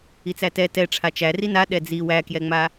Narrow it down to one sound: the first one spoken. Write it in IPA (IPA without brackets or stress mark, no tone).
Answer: i